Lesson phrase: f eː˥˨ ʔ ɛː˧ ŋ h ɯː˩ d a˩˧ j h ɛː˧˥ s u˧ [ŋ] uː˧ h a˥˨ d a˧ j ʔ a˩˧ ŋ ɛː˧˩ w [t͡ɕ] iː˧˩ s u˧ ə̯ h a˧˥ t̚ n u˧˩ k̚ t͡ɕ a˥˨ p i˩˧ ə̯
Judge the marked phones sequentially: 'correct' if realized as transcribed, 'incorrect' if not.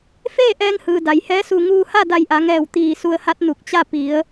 correct, incorrect

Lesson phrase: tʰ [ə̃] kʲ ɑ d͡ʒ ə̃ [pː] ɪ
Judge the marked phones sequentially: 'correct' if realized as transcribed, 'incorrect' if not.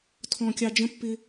incorrect, correct

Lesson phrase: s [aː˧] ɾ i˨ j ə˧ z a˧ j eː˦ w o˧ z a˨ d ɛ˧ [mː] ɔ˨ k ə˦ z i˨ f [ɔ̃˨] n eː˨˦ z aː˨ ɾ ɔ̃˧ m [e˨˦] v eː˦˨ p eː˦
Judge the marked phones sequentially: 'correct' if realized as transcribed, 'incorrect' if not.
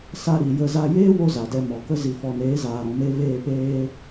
incorrect, incorrect, incorrect, incorrect

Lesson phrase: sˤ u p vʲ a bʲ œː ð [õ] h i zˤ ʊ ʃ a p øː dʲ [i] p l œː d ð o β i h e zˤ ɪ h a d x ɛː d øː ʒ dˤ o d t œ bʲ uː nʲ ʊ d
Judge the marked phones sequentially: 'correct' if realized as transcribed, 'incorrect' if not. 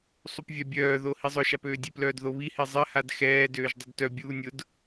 incorrect, incorrect

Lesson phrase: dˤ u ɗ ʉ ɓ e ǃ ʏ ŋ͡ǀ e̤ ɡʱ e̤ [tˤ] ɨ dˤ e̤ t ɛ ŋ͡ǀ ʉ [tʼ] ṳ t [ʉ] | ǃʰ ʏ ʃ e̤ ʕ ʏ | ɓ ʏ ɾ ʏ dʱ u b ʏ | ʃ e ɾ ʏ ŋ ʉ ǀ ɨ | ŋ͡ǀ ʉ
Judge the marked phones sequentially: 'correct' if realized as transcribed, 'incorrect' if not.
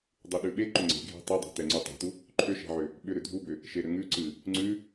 correct, incorrect, incorrect

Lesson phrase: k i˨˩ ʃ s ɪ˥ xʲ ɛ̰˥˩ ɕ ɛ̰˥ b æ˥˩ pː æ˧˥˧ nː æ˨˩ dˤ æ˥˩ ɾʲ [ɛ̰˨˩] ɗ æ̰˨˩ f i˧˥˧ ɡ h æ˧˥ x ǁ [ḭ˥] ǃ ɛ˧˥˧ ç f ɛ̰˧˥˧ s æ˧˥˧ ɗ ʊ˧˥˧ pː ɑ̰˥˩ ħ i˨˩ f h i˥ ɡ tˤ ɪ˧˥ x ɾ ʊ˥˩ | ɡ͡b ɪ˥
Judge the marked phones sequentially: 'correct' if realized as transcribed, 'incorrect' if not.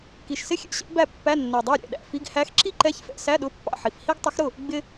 correct, incorrect

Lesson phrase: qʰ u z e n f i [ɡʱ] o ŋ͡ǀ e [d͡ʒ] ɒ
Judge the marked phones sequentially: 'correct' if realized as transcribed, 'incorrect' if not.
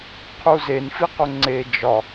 incorrect, correct

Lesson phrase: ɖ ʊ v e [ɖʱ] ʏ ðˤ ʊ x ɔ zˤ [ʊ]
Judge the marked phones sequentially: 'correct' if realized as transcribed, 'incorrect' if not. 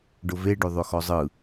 incorrect, incorrect

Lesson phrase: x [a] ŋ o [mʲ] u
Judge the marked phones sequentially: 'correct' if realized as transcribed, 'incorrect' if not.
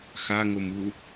correct, incorrect

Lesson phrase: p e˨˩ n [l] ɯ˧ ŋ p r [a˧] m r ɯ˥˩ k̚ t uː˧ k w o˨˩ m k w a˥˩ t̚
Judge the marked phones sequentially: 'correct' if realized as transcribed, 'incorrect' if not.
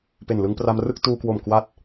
correct, correct

